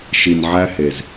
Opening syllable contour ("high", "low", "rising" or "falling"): low